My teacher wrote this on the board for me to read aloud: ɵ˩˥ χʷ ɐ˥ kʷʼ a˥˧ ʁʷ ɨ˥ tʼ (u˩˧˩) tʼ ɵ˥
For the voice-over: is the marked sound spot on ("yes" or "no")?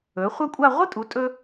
no